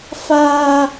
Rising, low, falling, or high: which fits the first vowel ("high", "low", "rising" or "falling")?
high